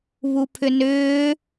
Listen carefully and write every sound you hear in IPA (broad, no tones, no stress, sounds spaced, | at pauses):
β u pʰ ʏ n ʏː